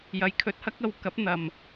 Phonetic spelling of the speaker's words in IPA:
j ɐ˨˧ j kʰ ɵ˨˥ t̚ h ɐ˥ k̚ ɐ˨˧ w k ɐ˨˥ p̚ n̪ ɐ˨ m

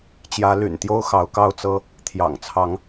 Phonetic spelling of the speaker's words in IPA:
t͡ɕ j ä˨˦ l y̰˨˩ n t̪ j o˦ ʊ̯ x ɑ˨˦ ʊ̯ k ɑ˥˨ ʊ̯ t͡s ɤ˦ | t̪ʰ j ɑ̰˨˩ ŋ t͡sʰ ɑ˨˦ ŋ

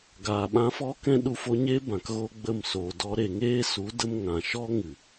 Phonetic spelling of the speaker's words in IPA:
ɡ aː˨ ɓ ã˧ f ɔ˦ k ɛ̃˦ ɗ u˧ f o˧ ɲ e˦ b ã˨ k ɣ o˦ ɡ͡b ə˦˨ m s oː˨ d ɔ˧ ɾ e˨ ŋ eː˦ s u˨˦ d ə˧ m ŋ ã˨ ʃ ɔ˦ ŋ ɨ˨

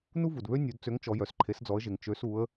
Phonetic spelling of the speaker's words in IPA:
n u˦ v u˩ d β ø˦ nʲ u˩˧ d t͡s ø˩˥ ŋ t͡ʃ ɔ˩˧ j œ˩ s ǃʰ e˩˧ s d͡z ɔ˩˧ ə̯ ʒ e˩ ŋ t͡ʃ ø˩˧ s u˩˧ ə̯

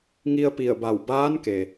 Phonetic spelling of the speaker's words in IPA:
ŋ i˧ ə̯ p i˧˩ ə̯ b a˧˩ w b aː˧˥ n k e˩

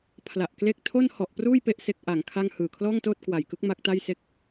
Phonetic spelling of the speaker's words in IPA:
pʰ l a˨˩ ʔ k l e˦˥ k̚ tʰ o˥˩ n h ɔ˨˩ ʔ p r uː˥˩ j p e˥˩ ʔ s e˦˥ k̚ ʔ a˩˦ ŋ kʰ a˥˩ ŋ h ɯː˨˩ kʰ l ɔː˥˩ ŋ t oː˥˩ t̚ k w a˨˩ j k ɯ˦˥ k̚ m a˦˥ k̚ t a˥˩ j s e˥˩ k̚

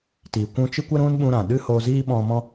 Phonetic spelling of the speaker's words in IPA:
t i˨ kʷ ũ˧ t͡ʃ ɨ˦ kʷ ə˦ ɾ ũ˦ n ɓ ũ˧ ɾ ã˨ ɗ ɨ˦ h o˧ z iː˦ ɓ ɔ̃˧ m ɔ̃˦

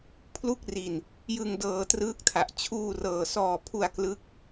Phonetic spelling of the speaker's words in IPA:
pʰ l u˥˩ k̚ r i˨˩ n | j ɯ˧ ŋ d ɤː˧ t r ɯː˦˥ k̚ tʰ a˨˩ ʔ t͡ɕʰ uː˧ r ɤː˨˩ s ɔː˨˩ pʰ u˧ a̯ k l ɯ˦˥ k̚

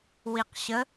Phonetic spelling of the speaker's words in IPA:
w i q ɕ ə

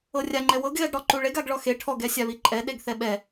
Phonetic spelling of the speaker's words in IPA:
ɤ rʲ a ŋ͡ǃ ɛ w ɤ ɡ ɣ ɛ ɡ ɽ ɔ ǃ u ɭ e ɡ a ɡ ɭ ɔ x e ʈʰ ɔ ɡ ɛ sʲ a β i ǃʼ ɛ ɗ e ɡ θ ɛ ɓ ɛ

